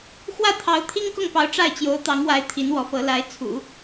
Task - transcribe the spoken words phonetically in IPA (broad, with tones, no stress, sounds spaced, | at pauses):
x w ä˥˩ t̪ʰ ɑ˧˥ ʊ̯ t̪ʰ i˥ ŋ k ʊ˥˩ ŋ p ɑ˧˥ ʊ̯ ʈ͡ʂ a˥˩ ɪ̯ t͡ɕ j o˧˥ ʊ̯ t̪ ɑ˧˥ ŋ w a˧˥ ɪ̯ t̪ʰ i˧˥ n w ɔ˧˥ f ɤ˧˥ l a˧˥ ɪ̯ t͡sʰ ṵ˨˩˦